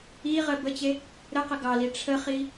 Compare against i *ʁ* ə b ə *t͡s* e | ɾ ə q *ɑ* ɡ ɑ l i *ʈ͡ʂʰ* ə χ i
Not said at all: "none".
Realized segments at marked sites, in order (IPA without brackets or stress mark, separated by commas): ʁ, t͡ɕ, ə, ʈ͡ʂʰ